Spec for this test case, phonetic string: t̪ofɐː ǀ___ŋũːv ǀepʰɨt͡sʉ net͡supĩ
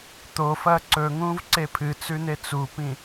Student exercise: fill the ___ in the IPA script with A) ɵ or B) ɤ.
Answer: A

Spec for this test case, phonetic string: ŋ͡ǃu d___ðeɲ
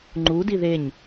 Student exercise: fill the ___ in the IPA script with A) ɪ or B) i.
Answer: B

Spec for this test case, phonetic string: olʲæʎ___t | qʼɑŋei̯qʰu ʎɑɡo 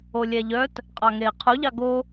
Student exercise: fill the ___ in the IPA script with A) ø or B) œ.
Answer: B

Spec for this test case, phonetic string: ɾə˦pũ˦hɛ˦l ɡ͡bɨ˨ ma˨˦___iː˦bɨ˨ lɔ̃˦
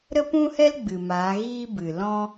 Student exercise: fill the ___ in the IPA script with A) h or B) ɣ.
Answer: B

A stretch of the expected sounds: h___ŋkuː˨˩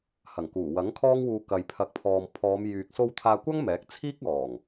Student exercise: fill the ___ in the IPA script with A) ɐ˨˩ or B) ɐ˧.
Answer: A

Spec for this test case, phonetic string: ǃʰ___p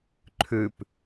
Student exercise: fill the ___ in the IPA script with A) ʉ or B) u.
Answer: A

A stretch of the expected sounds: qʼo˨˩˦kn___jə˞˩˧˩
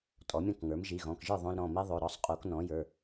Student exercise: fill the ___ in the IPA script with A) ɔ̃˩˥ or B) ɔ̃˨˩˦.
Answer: A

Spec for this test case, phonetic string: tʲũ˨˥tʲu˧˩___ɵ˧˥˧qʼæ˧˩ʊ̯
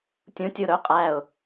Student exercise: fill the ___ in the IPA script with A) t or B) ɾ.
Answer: B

